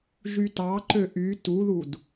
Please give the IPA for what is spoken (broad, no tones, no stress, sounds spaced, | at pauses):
ʒ y t ɑ ǃ ø ʔ y t u ð u d